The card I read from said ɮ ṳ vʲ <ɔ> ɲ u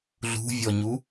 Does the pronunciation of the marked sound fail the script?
no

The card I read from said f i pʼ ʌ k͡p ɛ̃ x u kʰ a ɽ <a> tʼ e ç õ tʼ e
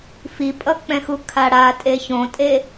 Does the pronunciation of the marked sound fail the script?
no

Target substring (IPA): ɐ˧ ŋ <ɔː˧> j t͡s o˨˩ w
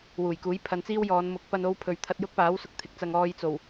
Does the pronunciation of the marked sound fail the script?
no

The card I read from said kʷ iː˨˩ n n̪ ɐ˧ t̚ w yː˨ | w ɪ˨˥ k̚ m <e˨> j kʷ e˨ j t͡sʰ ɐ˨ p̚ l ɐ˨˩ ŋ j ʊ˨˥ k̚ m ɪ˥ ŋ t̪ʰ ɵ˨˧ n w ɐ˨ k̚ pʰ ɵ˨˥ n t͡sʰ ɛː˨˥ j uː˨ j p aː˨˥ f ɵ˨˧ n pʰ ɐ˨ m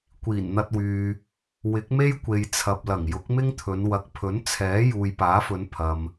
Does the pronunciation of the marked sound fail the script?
yes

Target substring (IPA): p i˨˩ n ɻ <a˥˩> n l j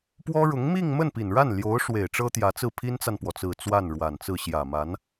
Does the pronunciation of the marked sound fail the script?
no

